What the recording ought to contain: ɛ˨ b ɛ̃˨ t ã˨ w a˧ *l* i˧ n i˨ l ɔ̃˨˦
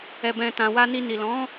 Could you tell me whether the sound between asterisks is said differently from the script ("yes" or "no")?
yes